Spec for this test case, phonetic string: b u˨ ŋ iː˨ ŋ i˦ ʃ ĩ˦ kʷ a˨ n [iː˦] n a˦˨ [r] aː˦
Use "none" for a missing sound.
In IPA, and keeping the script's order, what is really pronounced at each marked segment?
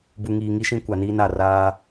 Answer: iː˦, r

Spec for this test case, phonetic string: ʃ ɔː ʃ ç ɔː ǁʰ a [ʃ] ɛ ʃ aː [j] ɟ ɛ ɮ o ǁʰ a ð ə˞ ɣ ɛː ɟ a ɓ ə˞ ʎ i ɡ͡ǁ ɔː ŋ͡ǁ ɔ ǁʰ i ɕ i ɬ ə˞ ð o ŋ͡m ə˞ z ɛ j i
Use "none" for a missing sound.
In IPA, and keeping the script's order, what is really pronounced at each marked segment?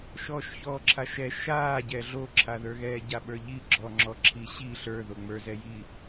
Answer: ʃ, none

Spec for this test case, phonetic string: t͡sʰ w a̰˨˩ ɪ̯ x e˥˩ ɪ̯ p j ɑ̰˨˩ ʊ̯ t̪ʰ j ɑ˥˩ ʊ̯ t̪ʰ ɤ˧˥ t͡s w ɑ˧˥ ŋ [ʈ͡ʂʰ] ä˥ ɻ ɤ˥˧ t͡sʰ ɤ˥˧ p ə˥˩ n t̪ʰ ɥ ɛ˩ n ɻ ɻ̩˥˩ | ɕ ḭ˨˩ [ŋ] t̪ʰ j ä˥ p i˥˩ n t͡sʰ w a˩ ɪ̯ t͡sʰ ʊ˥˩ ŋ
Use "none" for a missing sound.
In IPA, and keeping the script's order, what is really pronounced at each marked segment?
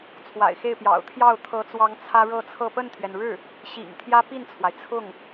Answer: t͡sʰ, ŋ

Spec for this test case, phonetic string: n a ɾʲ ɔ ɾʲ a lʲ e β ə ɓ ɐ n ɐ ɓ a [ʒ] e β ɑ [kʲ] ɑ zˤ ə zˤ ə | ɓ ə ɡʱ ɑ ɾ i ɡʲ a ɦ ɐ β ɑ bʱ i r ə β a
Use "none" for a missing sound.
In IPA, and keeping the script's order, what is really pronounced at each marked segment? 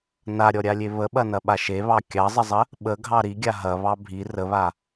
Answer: ʃ, kʲ

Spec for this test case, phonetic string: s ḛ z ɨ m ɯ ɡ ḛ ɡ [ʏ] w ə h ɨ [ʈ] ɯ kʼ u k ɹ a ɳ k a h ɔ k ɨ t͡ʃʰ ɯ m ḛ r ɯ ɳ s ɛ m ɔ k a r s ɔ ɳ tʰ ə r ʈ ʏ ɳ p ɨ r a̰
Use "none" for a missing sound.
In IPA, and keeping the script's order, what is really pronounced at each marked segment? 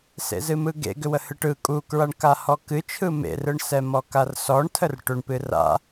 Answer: ʏ, ʈ

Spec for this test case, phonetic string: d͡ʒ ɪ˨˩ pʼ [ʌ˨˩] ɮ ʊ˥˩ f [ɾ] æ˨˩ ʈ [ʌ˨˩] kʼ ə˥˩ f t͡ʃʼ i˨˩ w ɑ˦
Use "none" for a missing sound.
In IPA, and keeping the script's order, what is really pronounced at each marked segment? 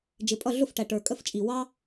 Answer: ʌ˥˩, ʈ, ə˞˨˩

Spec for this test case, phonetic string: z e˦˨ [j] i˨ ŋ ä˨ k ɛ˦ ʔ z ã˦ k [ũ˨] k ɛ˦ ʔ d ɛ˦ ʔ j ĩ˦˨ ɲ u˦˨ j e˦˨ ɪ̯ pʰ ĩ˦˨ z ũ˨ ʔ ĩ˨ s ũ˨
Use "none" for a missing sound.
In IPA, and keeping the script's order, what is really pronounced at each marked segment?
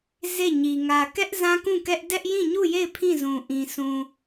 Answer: ɲ, ũ˦˨

